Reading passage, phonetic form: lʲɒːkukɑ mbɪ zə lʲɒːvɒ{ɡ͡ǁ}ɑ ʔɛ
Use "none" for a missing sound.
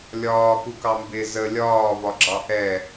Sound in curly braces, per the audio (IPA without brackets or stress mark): ɡ͡ǁ